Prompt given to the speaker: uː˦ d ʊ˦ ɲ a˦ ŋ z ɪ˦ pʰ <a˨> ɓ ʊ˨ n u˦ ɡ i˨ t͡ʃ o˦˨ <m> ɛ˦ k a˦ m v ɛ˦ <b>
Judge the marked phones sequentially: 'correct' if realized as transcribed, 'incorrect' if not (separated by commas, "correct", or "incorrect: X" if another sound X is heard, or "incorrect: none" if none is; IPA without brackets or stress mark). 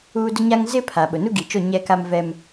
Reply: correct, incorrect: ɲ, incorrect: m